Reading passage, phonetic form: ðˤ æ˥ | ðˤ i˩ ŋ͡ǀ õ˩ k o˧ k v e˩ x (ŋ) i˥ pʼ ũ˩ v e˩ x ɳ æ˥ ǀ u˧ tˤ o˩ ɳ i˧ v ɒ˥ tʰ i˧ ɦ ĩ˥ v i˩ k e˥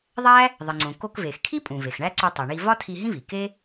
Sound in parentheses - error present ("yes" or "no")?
yes